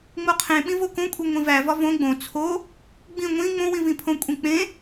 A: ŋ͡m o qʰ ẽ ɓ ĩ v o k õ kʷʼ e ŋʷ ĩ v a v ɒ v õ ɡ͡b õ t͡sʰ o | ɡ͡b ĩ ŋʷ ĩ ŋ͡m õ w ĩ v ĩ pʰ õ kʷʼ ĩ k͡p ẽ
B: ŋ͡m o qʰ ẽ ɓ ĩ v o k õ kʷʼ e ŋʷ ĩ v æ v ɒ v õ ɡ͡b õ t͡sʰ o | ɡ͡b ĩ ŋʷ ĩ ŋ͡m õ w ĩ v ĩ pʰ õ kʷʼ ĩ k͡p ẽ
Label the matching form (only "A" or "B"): B